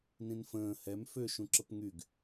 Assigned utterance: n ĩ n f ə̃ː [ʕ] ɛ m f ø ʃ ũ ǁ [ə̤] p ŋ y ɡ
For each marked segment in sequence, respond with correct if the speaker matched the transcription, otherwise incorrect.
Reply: incorrect: h, incorrect: ə

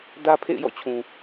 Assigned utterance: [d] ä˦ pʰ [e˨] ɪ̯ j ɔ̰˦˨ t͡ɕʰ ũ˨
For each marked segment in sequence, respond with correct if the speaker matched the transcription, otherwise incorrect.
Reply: correct, incorrect: ḛ˦˨

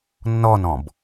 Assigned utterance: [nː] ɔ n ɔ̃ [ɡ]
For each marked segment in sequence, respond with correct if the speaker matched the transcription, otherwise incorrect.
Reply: correct, incorrect: b

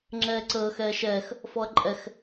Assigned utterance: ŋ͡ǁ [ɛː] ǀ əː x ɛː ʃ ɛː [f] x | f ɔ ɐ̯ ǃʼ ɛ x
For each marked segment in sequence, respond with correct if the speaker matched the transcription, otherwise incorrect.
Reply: correct, incorrect: none

